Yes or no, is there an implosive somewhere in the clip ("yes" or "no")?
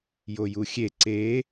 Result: no